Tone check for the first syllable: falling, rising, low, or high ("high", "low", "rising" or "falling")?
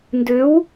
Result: rising